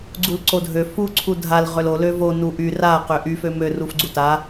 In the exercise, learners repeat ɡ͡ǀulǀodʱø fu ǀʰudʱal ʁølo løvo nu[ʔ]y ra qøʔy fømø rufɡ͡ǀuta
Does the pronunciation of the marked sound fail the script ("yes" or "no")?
no